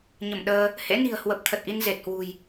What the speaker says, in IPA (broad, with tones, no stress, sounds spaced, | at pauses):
ɲ ə˧˩ m ɗ əː˧ | h ḛ˧˥ n i̤˨˩ ə̯ h w ə˨˩ p̚ t̪ʰ ə˨˩ t̚ ʔ i˧ n z e˨˩ t̚ h w ṳ˨˩ j